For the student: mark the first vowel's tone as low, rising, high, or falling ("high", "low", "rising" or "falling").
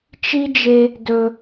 high